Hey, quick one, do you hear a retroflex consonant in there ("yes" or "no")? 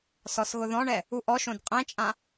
yes